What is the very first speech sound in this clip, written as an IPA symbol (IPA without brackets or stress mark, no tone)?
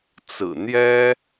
t͡s